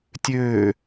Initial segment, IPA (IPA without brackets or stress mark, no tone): tʲ